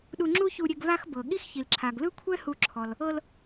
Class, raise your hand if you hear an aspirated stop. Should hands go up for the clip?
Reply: yes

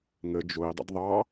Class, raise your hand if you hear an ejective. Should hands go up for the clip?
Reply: no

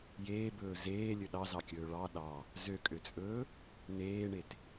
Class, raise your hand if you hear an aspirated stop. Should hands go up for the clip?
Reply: no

